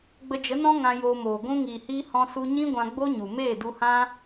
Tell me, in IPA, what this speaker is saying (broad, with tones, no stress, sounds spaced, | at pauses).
ɡ͡b ə˧ d͡ʒ ə˨˦ n ɔ̃˦ ŋ ã˧ j oː˧ m oː˨ ɡʷ ũ˧ ŋ iː˨ h iː˧ h ɔ̃˧ s u˧ ɲ ĩ˦ ɡʷ ã˧ ɡ͡b o˦ ɲ u˨ m eː˦˨ d u˧ h ã˦